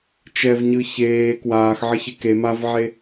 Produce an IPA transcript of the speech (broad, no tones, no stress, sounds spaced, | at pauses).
t͡ʃ ɛ v ɲ ɯ ç eː k w aː x ʕ ʌ ç e k e m a v ʕ e